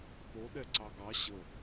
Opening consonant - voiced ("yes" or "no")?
no